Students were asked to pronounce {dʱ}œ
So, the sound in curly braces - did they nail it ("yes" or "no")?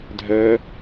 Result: yes